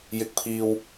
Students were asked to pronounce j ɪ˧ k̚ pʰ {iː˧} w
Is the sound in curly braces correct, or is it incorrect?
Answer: correct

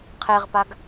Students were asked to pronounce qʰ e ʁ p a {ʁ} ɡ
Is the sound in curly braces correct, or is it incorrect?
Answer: incorrect: none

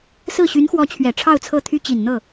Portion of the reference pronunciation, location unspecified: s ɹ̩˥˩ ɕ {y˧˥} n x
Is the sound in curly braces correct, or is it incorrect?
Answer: correct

